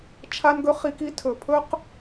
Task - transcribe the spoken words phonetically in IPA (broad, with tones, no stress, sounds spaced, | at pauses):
t͡ʃʰ a˦ n ɡ ɵ˦ χ i˦ k i˦ tʰ ɵ˨ pʰ ɵ˦ q